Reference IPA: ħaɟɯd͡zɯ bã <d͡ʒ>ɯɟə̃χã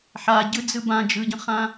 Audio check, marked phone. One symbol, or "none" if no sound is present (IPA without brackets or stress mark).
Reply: d͡ʒ